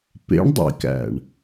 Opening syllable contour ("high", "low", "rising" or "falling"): rising